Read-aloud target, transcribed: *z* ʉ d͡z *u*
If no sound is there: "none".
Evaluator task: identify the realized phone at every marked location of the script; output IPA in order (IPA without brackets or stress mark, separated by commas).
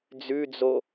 d͡z, o